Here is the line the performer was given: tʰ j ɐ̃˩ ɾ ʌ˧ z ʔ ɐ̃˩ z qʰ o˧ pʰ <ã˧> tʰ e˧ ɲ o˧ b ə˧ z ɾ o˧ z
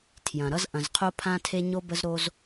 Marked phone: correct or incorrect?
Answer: correct